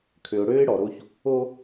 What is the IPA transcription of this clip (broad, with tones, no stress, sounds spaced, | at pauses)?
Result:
kʰ ø˨ ʊ̯ ɽ øː˦ ɪ̯ ɽ ɔ˨ ɾ o˦ ç | o˦